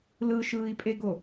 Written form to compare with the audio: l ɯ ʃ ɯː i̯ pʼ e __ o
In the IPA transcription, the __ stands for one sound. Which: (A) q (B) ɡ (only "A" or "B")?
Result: B